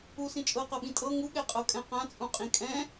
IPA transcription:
u s ĩ t͡ʃʼ ɤ q ɤ ɓ ĩ tʼ ɤ ŋ u ɠ ɛ qʼ ɤ kʼ ɛ̃ q ã t͡sʼ ũ qʼ ĩ kʼ ɛ̃

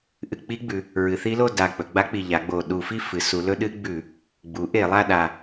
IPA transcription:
ʔ ɨ˧˩˧ k͡p i˦˥ ɡ͡b ʉ˩˧ | ɹ ɨ˩˧ θ i˦˥ l o˥˧ d a˨˩ k͡p ɵ˩˧ ɡ͡b a˦˥ k͡p i˨˩ ʎ a˩˧ ɡ͡b o˨˩ ɗ u˧˩˧ f i˥˧ f ɨ˩˧ s u˩˧ l ɵ˦˥ ɗ ɨ˦˥ ɡ͡b ʉ˧˩˧ | ɡ͡b u˩˥ ʔ e˧˩˧ lˠ a˥˧ ɗ a˨˩

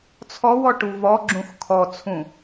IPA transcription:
t͡sʰ ɔ w ɔ ʈ u v ɔ ɡ͡ǁ ũ x kʰ ɔ t͡sʰ ũ

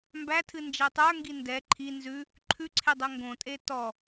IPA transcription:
m b æ tʰ ɨ n d͡ʒ æ tˤ ə˞ ŋ ɡ i n d ɛ ǃʰ i n z ʉ | ǃʰ ʉ ǀʰ e dˤ ɛ ŋ ɡ õ tʼ e t ɔ

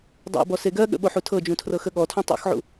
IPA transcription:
dˤ o̰ b ɔ s e ɡ ɜ ɠ ə̰ ɓ o ħ u tʰ ɤ d͡ʒ ũ tʰ r ɤ x ə ɠ ɔ tʰ ũ tˤ o̰ x ʕ ṵ

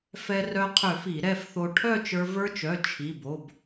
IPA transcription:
f ɛ˧ r œ˧ qʰ ø˧˩˧ f i˧˩˧ ɾ ɛ˥˨ f θ o˧ ʈʰ œ˥˨ t͡ʃ ə˞˧ v ə˞˧ t͡ʃ œ˩˧˩ t͡ʃʰ i˩˧˩ b o˩˧˩ b

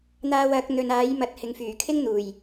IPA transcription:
n̪ aː˧ w ɐ˨˥ k̚ n̪ ɵ˨ n aː˨˥ j m ɐ˨ t̚ h ɪ˨ ŋ f yː˨˩ kʰ ɪ˥ ŋ n̪ uː˨˩ j

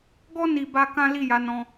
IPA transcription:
ɡ ɔ˦ n i˧ b a˧ k ã˦ l i˦˨ j a˨˦ n ɔ̃˧

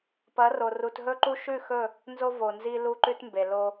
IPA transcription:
p ɐ˨˦ r o˨ r u˨ t ɦ ɵ˦ ǃ u˦ ʃ ʉ˦˨ x ɵ˦˨ | n z o˦ v o˨ n z i˦ l u˦ ǃ ʉ˦ t m b e˨ l o˦

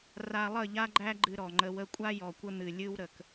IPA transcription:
r a˧ lˠ ə˦˨ ʎ a˦ ɡ͡ǃ æ˦ ɡ͡ǃ ɨ˧ ɾ ɔ˨ ŋ͡ǃ ə˨ w ə˧ kʷʼ a˦ j ɔ˨ kʷ ə˦ n̪ ɨ˨ lʲ ɨ˦ w ɾ ə˨ k

